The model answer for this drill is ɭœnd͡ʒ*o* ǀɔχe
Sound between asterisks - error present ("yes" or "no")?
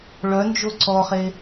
no